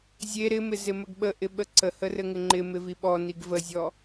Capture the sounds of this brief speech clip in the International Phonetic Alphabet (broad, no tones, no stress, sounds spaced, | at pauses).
zʲ e ɾ ɪ m ɪ z ɪ m ə ɡ ɓ ə ʔ ɪ ɓ ə ǀ ə h ə r ɘ ŋ ɪ ŋ͡ǃ ɪ m ɪ v i ɓ ɔ n i ɡ v ə zʲ ɔ